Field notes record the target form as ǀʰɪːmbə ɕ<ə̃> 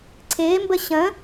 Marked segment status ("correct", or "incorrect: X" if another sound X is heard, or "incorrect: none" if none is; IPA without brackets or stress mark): correct